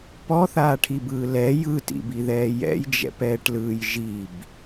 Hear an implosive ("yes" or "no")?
no